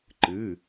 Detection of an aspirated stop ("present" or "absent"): absent